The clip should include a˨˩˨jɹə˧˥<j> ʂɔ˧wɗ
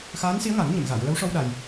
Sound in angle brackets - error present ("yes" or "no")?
yes